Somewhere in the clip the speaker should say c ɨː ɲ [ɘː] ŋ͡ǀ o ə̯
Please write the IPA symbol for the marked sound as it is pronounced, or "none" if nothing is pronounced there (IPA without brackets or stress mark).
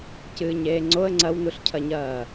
eː